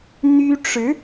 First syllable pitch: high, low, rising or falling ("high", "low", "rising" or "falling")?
high